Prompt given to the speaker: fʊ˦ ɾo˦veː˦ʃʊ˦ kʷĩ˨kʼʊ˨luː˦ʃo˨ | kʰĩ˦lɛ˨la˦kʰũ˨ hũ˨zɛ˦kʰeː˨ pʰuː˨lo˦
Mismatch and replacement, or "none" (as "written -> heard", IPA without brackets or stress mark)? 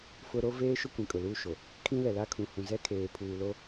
none